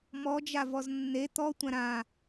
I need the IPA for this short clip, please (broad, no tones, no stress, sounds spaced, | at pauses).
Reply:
m ɔ d͡ʒ a v ɔ z nː e t̪ ɔ tʷ ã ɾ ã